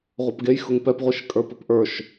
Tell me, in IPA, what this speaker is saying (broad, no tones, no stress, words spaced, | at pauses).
ʁʷɤpɡejxʊŋ pɛpʁʷiʃkʼə˞ pɘpʔə˞ʃ